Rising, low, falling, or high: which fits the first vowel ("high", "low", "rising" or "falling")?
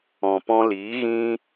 low